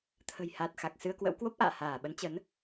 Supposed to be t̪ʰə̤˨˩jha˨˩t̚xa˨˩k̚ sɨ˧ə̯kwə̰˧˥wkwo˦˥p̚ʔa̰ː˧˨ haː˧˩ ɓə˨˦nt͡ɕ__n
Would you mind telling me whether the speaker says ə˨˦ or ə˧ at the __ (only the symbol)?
ə˨˦